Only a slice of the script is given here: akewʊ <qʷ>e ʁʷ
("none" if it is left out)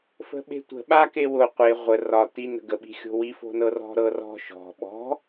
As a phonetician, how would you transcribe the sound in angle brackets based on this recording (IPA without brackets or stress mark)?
qʷ